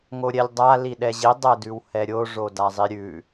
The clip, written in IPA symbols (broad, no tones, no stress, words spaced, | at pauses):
ŋoɾʲɛlʲdˤa liɗɛʑi dˤɛdʉwhɛɾʲo ʐodazˤiɾʲʉ